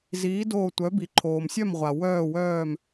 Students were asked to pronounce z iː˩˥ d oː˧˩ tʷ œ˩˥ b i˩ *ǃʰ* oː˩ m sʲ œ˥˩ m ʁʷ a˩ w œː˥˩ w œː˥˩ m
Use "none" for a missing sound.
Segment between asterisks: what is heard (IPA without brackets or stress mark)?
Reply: ǃʰ